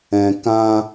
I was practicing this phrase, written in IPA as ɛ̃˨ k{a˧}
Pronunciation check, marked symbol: incorrect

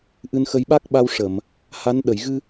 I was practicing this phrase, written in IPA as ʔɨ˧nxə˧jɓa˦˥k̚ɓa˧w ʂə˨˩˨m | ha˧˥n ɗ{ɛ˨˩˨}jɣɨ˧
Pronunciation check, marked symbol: incorrect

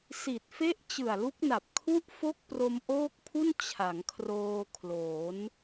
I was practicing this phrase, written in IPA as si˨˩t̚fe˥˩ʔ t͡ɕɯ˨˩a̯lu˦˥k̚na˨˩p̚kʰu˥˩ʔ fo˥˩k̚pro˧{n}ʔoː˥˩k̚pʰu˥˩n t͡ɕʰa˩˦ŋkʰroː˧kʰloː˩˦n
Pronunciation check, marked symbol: incorrect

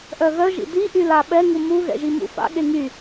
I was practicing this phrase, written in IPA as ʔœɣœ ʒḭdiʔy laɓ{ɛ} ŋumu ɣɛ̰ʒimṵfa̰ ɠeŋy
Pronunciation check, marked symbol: correct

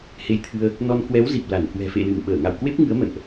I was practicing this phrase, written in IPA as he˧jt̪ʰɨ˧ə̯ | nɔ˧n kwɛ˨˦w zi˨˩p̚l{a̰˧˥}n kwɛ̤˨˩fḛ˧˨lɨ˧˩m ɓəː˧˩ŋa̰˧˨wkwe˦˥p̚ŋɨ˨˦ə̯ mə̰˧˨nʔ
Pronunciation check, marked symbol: incorrect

